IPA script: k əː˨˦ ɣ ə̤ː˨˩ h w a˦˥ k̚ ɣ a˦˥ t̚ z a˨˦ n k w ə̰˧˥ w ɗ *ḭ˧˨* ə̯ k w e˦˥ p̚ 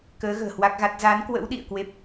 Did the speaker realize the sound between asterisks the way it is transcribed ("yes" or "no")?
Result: yes